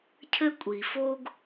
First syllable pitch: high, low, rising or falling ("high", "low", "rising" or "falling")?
high